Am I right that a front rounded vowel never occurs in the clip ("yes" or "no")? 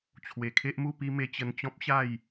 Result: yes